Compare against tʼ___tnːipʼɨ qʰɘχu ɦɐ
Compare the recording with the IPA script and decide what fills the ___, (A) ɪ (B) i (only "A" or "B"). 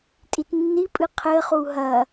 B